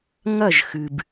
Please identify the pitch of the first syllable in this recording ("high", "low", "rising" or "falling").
falling